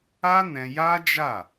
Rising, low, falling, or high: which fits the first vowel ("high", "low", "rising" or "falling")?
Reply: high